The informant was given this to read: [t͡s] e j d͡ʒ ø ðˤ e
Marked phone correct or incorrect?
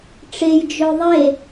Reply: incorrect: ʈ͡ʂ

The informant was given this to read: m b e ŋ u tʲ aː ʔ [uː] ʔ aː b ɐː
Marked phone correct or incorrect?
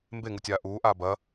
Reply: correct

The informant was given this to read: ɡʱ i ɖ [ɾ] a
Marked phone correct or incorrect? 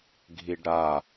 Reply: correct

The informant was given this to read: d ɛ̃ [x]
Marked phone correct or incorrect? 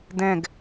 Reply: incorrect: ɡ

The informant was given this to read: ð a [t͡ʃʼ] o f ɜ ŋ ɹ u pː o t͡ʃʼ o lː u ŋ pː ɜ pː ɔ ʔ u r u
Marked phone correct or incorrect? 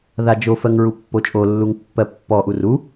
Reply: incorrect: d͡ʒ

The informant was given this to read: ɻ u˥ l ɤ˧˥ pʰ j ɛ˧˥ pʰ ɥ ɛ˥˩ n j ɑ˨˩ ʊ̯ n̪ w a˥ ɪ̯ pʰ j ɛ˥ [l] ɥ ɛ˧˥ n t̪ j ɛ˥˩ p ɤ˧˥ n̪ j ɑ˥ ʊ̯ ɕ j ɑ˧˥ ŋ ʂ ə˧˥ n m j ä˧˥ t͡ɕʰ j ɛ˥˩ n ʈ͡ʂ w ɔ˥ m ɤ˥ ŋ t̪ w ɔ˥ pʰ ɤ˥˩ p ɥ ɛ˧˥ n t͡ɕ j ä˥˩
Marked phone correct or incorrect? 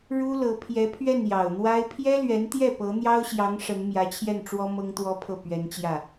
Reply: correct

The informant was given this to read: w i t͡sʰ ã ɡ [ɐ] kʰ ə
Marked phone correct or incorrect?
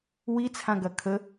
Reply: correct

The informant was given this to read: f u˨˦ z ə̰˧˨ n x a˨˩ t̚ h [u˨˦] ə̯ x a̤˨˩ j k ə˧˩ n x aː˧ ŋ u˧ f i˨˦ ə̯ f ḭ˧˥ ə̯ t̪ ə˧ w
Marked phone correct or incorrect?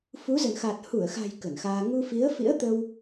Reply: incorrect: u˧˩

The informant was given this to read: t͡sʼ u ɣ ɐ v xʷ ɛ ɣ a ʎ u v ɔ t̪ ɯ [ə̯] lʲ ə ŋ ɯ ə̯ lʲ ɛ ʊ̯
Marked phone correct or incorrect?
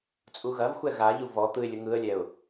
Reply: incorrect: ɪ̯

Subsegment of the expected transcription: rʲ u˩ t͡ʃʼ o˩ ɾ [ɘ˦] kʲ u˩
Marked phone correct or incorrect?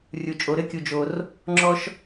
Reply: correct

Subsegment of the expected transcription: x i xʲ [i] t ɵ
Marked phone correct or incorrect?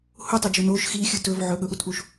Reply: incorrect: ɨ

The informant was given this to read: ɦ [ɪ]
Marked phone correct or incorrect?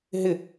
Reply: correct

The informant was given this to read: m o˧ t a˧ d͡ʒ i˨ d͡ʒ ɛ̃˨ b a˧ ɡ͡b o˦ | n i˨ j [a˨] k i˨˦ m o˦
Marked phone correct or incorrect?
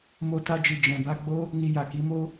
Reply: correct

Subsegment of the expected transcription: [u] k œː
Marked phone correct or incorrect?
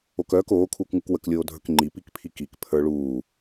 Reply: incorrect: o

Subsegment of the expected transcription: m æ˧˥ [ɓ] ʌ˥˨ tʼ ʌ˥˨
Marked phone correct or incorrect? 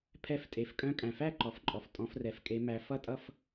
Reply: incorrect: f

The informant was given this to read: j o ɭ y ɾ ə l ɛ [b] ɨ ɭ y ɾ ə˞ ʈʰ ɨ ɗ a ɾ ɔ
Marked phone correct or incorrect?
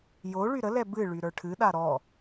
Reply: correct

